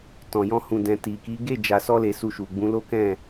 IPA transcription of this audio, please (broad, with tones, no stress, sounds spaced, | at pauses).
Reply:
t ɔ̃˨ j ɔ̃˧ h ũ˨ d ɛ̃˨ t i˨ k i˨˦ ɡ e˦˨ d͡ʒ a˧ s ɔ˦ l e˧ s u˧ ʃ u˨ ɡ͡b ũ˨˦ l o˦ k ɛ̃˦˨